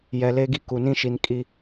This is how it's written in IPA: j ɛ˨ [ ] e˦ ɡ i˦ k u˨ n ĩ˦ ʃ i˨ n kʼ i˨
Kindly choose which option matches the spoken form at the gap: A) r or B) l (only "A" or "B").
B